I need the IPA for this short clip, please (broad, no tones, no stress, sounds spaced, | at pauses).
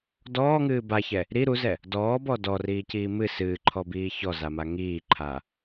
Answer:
d ɔː ŋ ɨː b a ç ɛ | ɾ i ɾ u z ɛ | d ɔː b ɔ d ɔ r iː c iː m ɨ s ɨː ǃʰ ɔ b iː ç ɔ z a m a ŋ iː ǃʰ a